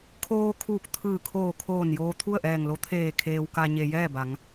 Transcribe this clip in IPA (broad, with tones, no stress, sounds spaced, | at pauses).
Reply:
kʰ oː˧ kʰ uː˧˩ k̚ t̪ʰ ɯː˧˩ kʰ oː˧˩ kʰ oː˧˩ n j oː˧ t̪ʰ u˥˨ ə̯ ʔ ɛː˧˩ ŋ l o˧˥ t̪ʰ eː˧˩ kʰ eː˧ w k a˧ ɲ e˩ j ɛː˥˨ b a˩˧ ŋ